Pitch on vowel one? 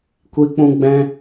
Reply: high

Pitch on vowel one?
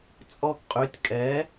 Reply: high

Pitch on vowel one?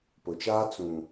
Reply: low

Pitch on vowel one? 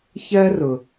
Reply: high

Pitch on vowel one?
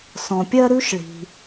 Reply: low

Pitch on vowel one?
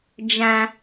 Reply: high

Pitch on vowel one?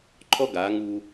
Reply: high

